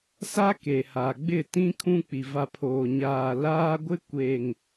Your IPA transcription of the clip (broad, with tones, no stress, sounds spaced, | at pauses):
s a˦ k e˨ h a˨ ɡ͡b ɪ˦˨ t ĩ˦ kʰ ũ˦ k͡p i˨ v a˨ pʰ oː˨ ɲ aː˨ l aː˦ ɡʷ ɪ˦ kʷ e˨ ŋ